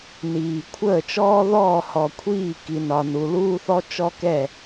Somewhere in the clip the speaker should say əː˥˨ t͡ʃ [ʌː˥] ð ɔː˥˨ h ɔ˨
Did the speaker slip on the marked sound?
yes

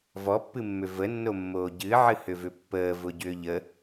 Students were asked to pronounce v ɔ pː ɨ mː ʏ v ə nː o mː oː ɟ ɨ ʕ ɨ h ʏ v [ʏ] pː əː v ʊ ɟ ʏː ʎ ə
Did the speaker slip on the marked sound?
no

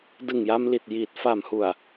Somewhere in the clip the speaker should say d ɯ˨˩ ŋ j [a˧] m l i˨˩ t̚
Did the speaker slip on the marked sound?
no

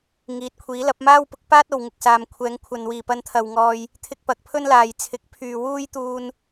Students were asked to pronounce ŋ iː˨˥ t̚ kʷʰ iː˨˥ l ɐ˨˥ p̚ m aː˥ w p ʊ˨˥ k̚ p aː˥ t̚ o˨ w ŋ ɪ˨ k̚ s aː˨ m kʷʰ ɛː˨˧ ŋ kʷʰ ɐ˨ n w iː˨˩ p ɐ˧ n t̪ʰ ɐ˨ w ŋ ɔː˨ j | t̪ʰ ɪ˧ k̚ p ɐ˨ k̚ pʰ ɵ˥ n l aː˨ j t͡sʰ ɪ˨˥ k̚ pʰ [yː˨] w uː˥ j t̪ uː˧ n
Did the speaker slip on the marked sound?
no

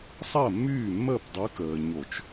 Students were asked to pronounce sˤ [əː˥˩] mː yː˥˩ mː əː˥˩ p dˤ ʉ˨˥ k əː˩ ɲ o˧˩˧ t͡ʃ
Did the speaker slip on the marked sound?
no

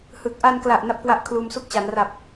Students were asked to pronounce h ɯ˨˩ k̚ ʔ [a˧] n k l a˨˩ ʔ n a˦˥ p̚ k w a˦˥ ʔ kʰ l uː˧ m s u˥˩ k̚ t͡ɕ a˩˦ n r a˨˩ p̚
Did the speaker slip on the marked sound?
no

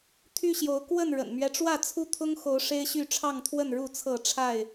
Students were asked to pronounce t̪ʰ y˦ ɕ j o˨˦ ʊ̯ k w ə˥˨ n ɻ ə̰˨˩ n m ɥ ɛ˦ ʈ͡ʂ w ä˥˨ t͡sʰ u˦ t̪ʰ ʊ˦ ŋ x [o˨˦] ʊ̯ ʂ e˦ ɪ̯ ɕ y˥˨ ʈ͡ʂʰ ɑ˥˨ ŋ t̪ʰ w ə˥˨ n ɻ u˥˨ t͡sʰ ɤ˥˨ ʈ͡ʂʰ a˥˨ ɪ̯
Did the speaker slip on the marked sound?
no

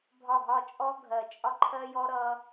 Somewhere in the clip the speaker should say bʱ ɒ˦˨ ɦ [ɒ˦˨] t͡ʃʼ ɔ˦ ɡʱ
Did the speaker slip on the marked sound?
no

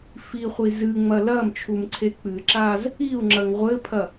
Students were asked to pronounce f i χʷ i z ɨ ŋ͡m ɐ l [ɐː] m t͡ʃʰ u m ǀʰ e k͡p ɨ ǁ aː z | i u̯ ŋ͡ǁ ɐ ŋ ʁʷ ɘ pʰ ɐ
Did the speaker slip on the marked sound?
no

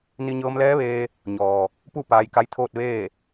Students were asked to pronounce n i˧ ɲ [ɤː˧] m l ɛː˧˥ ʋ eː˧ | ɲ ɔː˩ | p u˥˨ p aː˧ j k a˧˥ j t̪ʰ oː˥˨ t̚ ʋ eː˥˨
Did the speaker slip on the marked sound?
no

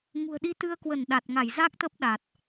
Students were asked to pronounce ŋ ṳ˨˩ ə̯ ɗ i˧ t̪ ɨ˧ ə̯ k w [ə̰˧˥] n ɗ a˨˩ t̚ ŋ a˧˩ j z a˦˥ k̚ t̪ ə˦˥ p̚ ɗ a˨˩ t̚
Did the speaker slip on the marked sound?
yes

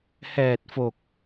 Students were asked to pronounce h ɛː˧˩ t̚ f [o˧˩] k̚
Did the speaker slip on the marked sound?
no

